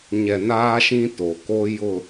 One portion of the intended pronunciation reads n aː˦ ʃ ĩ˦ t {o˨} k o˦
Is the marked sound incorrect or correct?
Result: correct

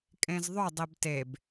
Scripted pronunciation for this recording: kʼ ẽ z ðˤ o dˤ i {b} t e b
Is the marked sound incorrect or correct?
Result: correct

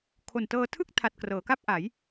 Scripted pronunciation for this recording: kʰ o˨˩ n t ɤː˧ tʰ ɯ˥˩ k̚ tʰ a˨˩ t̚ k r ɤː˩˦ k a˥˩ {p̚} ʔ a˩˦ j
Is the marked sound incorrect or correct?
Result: correct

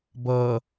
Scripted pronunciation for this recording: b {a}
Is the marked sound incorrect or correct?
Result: incorrect: ʌ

